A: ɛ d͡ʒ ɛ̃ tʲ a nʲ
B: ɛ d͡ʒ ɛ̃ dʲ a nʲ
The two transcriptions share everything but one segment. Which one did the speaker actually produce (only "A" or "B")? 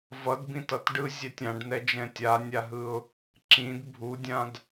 A